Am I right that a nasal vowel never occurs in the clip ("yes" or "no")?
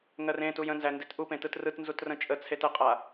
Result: no